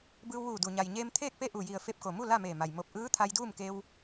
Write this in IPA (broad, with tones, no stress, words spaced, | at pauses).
bɯː˧wʋuː˧˩du˩ɲa˩j ɲeː˧m t̪ʰeː˥˨k̚pe˥˨ ʔu˧˩ji˧˩ə̯ fe˧p̚ko˩mu˥˨ la˥˨meː˧˩ma˩j mo˧˩p̚ʔɯː˧˥ t̪ʰa˧jduː˥˨mke˧w